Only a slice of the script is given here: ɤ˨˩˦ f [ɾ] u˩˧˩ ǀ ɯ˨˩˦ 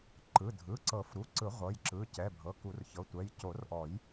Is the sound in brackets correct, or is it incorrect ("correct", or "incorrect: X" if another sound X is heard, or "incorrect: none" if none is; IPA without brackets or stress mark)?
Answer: correct